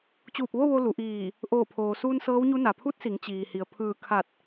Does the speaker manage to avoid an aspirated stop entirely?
no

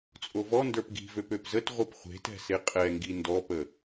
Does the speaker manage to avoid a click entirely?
yes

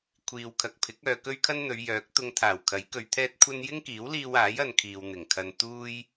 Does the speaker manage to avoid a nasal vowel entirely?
yes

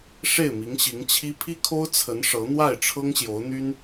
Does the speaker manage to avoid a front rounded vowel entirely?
no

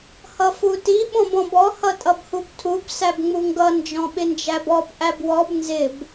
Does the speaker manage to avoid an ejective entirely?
no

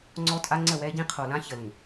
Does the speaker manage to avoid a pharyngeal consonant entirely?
yes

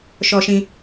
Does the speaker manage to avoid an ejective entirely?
yes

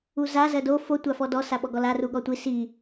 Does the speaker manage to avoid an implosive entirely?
no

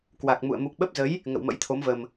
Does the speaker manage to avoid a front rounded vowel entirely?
yes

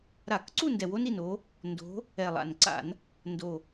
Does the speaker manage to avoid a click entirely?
no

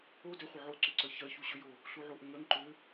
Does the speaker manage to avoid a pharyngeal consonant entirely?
no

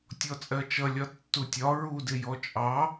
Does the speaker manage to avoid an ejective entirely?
no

